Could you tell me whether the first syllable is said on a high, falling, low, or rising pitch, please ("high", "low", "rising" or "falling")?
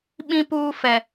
high